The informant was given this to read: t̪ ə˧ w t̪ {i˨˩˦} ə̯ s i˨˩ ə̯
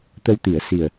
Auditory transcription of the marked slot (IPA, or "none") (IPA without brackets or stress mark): i˨˩˦